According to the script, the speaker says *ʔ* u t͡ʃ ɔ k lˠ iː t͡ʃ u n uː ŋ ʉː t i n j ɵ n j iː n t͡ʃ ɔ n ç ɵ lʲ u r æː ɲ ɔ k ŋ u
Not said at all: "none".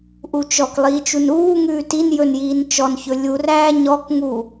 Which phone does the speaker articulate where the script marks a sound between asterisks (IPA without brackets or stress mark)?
ʔ